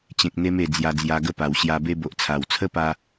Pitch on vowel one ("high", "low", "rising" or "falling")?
low